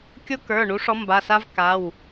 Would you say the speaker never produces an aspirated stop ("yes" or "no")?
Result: yes